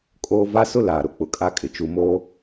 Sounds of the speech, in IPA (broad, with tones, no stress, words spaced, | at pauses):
kʼoː˦ va˦sʊ˦ laː˨ɾʊ˨ k͡pʊ˨kʼa˦kʼɪ˨ t͡ʃu˨moː˦